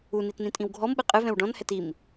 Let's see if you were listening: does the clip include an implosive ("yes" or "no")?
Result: yes